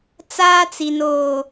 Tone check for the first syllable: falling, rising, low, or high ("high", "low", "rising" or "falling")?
high